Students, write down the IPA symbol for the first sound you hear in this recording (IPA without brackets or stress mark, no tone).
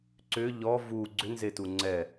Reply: ǀ